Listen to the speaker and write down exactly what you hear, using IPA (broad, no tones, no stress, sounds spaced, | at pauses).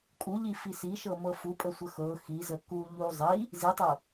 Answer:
kʼ u ʎ i f i s i ʃ ɤ m ɤ f u pʼ ə sʷ ə x ɤ x i z ə k u ʎ u zˤ i | z i tˤ ɤ